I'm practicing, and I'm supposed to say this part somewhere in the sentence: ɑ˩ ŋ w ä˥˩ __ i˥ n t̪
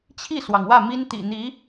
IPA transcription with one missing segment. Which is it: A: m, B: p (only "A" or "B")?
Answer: A